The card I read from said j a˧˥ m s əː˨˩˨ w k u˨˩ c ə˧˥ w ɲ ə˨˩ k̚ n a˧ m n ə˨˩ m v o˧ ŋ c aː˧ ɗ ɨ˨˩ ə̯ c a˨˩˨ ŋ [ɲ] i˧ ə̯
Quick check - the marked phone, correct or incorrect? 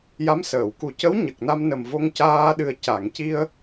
incorrect